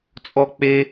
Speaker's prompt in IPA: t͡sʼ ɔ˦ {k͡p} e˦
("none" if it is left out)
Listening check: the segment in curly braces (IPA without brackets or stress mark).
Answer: k͡p